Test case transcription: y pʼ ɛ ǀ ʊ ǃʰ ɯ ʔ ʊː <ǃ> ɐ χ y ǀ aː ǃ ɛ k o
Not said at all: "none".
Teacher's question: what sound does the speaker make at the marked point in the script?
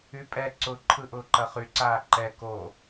ǃ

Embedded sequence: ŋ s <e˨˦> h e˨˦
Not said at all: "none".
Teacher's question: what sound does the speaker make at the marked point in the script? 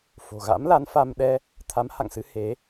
ɨ˨˦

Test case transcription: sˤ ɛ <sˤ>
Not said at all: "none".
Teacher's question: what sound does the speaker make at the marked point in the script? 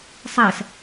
s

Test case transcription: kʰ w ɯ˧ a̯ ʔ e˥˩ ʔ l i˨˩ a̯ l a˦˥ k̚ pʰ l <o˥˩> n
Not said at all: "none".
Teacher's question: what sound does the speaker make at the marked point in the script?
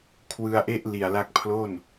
o˥˩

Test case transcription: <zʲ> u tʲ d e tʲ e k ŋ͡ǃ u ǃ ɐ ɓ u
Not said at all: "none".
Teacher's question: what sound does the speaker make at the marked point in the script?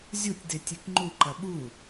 zʲ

